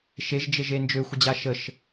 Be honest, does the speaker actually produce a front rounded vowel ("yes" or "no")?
yes